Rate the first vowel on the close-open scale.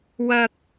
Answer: open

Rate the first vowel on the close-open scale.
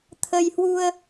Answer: mid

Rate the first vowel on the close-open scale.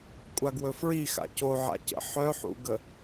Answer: open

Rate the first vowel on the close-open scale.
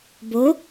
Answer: mid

